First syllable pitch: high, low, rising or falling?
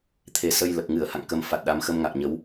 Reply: low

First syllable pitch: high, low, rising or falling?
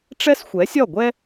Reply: high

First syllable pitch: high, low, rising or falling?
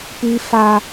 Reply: high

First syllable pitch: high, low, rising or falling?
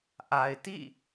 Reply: low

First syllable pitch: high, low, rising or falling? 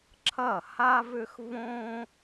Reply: falling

